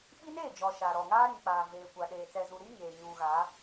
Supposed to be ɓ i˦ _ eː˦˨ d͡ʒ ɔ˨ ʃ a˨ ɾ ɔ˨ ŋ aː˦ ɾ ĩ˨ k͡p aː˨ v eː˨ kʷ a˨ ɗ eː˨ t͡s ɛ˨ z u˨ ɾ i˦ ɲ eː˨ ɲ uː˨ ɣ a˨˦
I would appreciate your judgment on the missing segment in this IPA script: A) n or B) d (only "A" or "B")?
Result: A